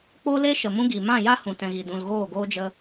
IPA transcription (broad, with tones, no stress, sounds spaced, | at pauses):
k͡p o˧ l e˧ ʃ ə˨ m ũ˦ ɡ i˨ m ã˦˨ j a˦ h ũ˨ t ɛ̃˨ ɣ i˨ d ũ˨ l ɣ oː˦˨ ɡ oː˦ d͡ʒ ə˦